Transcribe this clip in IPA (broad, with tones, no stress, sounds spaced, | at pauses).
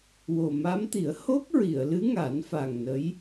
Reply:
w o˨˩ m a˧˥ m t̪ i˨˩˦ ə̯ h o˦˥ k̚ ɹ i˨˩˨ ə̯ l ɨ˧˥ ŋ a˨˩˦ n f a˨˩ ŋ n ə˧˥ j